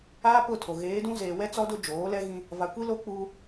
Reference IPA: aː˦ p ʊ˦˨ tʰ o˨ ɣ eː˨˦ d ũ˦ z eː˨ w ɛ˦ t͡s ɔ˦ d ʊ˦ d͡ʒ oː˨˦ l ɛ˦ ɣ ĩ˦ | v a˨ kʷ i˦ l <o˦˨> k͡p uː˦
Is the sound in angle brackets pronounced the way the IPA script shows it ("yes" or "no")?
no